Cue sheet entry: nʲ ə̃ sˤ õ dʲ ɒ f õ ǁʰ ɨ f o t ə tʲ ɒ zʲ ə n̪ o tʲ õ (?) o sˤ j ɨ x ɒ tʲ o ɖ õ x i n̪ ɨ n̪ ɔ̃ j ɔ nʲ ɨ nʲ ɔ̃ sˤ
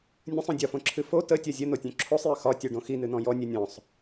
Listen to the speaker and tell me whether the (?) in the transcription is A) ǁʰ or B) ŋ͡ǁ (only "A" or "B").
A